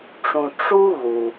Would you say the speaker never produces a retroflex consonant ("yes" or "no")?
no